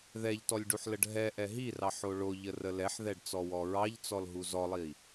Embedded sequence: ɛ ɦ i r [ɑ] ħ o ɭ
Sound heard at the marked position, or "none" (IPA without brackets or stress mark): ɑ